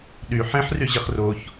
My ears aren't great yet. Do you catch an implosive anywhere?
yes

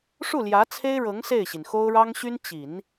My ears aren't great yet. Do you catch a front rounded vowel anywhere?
yes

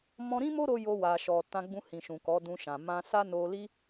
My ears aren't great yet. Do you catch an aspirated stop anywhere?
no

